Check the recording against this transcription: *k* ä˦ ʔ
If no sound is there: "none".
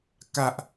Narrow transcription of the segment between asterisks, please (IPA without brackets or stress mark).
k